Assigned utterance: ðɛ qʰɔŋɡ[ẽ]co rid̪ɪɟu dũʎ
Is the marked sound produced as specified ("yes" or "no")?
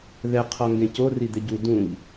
yes